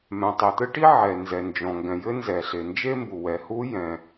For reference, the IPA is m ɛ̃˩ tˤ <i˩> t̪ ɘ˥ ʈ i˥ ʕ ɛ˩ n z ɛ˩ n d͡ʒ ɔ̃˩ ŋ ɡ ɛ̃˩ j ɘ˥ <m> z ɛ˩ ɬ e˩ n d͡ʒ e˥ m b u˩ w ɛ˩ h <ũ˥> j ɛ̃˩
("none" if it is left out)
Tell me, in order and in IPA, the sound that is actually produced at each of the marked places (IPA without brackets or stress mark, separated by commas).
i˩, n, u˥